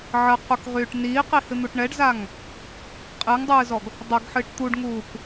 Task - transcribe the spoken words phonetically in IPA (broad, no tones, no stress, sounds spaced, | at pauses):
ʕ ə q u k ʁ yː ʈ n iː q i h ɨ n̪ u ʈ ɳ ɛ ɖ z a ŋ | qʼ ɨ ŋ dˤ ɨː z ɔ ɡ | dˤ ɐ ɡ ħ ɨ ʈ t̪ u ɖ ŋ uː k